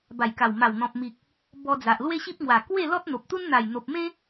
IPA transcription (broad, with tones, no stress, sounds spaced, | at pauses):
b a˨˩ j k a˨˩ w m a˨˩ w n̪ ɔ̃˨ p̚ m i˨ k̚ | b ɔ˧ d͡z a˨ ʔ l w e˦ ɕ i˦ p̚ ŋ w a˨˩ k w e˥˧ l ɔ˦ t̚ n̪ o˨ p̚ t̪ u˦ n n̪ a˨˩ j n̪ o˨ p̚ m ẽ˦